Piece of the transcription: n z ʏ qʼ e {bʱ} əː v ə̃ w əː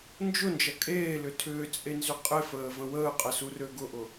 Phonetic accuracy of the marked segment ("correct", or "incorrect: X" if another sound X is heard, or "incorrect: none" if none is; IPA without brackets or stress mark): incorrect: f